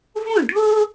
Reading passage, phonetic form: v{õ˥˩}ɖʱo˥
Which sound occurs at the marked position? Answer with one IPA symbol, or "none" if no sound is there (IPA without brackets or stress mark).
õ˥˩